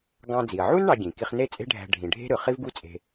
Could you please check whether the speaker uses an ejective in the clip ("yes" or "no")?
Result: yes